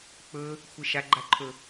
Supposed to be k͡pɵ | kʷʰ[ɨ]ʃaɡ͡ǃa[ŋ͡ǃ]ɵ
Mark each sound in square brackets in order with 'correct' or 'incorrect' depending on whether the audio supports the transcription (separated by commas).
incorrect, incorrect